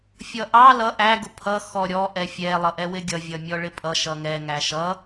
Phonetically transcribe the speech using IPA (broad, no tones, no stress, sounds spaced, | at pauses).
fʲ ʌ ʔ ɑ l ʌ ʔ æ ɡ ʊ pʰ ʌ x ɔ ɾʲ ɔ ʔ ɛ fʲ ɛ lˠ ʌ ʔ ɛ w ɪ ɡʲ ʌ vʲ ʌ mʲ ɔ ɭ ɪ pʼ ʌ ʃ ʌ ŋ ɛ ŋ æ ʃ ʌ